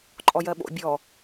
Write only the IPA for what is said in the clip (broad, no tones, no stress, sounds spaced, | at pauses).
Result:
ǃʼ ɔ j ɜ ɓ o̰ bʲ ɔ